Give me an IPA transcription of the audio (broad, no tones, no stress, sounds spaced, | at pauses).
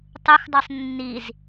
tˤ ɯ x dˤ ɯ sˤ nː i z